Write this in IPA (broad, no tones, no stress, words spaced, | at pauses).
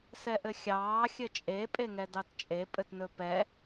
sɛʔɘxʲɑː xʲɘt͡ʃʼe pʼeŋɛdɑtt͡ʃʼe pʼɘtnɵpɛ